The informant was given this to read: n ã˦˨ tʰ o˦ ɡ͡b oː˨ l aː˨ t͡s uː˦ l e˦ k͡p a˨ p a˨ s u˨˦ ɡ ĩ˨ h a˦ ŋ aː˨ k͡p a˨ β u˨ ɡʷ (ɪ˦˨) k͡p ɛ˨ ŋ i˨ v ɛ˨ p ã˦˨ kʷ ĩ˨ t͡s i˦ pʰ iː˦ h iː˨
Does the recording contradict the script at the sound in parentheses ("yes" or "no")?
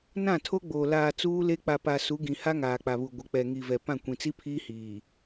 yes